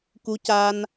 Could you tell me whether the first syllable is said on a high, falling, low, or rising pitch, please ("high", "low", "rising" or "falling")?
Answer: rising